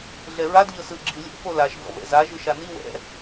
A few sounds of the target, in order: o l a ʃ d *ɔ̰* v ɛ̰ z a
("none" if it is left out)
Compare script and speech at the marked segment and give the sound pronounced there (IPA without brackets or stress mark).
ɔ̰